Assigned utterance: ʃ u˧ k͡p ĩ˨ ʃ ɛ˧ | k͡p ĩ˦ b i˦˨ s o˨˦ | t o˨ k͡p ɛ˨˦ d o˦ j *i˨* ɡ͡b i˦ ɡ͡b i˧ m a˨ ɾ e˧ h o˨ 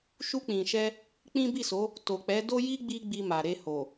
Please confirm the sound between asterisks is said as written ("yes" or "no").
no